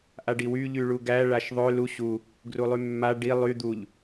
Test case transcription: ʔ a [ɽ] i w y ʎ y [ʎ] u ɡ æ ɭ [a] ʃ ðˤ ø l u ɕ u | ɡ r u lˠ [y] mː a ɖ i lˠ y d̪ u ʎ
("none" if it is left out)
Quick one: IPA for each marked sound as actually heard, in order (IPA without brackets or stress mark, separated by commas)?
ɖ, ɭ, a, y